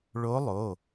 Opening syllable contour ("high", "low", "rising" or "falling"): rising